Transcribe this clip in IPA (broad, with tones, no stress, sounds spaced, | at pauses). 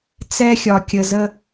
t͡s ɛ˦ xʲ ɒ˨ kʲ ə˨ z ə˦